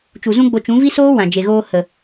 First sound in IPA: t͡ʃ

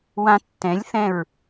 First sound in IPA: w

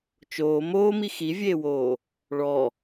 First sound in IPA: t͡ʃ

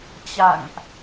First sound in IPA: t͡ɕ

